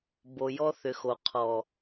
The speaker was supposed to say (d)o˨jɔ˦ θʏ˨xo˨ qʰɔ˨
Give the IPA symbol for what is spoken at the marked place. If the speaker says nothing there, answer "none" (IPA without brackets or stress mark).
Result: b